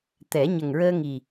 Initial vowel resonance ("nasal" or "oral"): oral